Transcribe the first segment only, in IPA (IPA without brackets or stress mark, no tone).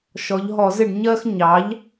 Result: ʃ